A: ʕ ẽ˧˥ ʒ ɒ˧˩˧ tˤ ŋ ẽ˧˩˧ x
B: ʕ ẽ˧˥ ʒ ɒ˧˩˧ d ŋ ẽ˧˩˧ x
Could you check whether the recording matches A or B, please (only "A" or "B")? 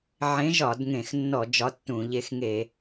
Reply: B